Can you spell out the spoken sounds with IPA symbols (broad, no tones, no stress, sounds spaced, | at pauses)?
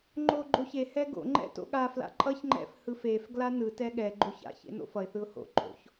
ŋ͡ǃ o ɡ͡ǃ o ç e h ɛ ɡ o̰ ŋ͡ǃ ɛ̰ t o̰ ɠ a f l a̰ ǃʼ ʌ ç ŋ͡ǃ ɛ̰ f h ɯ f e f ɡ l a n ɯ t ɛ ɠ ɛ ɡ͡ǃ o ç a̰ ç ḛ n o̰ f ʌ ɪ̯ θ ɯ ʊ̯ h o̰ ǃʼ o̰ ç